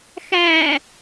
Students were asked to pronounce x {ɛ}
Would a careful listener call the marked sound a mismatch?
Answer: yes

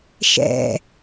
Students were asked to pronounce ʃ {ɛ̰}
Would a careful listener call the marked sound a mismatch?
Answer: no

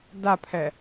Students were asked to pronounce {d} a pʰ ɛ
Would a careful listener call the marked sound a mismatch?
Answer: no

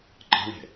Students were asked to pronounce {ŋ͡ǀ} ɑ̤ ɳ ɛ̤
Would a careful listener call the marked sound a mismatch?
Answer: yes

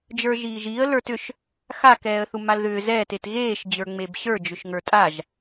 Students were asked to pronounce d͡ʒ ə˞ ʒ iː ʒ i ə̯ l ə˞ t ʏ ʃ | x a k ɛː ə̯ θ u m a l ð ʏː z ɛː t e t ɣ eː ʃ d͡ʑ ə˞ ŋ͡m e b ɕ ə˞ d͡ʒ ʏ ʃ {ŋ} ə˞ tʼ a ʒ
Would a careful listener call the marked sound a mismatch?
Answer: no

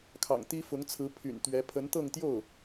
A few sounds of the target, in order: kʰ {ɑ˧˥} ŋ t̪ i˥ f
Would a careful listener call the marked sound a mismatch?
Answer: yes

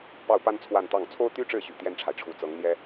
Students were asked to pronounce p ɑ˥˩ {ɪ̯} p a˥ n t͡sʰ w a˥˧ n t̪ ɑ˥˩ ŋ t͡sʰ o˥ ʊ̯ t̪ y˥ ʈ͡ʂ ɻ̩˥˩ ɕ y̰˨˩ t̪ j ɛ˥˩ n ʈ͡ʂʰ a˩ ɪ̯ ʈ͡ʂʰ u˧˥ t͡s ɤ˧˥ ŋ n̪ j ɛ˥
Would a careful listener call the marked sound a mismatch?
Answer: yes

